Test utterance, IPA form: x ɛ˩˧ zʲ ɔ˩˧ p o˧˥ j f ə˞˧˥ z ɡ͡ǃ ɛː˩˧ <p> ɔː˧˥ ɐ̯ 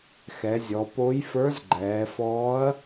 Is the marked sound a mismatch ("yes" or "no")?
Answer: yes